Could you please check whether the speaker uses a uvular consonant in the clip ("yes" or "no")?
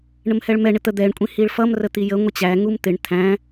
no